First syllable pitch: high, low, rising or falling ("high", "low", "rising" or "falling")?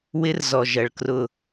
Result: high